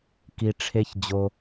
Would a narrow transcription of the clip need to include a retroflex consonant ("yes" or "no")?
yes